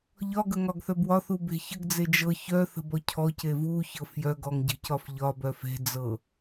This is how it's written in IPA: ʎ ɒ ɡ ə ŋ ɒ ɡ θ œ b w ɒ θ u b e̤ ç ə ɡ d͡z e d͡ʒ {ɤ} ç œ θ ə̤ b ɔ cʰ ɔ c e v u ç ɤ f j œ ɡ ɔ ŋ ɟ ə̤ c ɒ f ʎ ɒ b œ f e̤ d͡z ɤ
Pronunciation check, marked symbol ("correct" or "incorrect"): correct